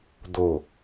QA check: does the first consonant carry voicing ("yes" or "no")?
yes